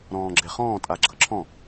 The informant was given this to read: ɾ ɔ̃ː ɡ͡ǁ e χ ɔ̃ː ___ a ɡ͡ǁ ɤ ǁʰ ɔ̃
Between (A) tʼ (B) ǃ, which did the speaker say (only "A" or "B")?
A